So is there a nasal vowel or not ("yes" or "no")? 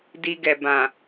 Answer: yes